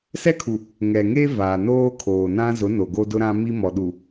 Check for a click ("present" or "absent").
absent